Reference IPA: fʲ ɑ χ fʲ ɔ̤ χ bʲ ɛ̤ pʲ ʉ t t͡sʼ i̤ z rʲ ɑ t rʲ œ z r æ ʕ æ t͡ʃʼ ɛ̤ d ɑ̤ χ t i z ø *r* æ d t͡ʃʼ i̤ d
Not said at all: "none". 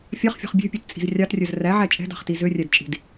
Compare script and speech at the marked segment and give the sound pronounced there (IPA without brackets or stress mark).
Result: rʲ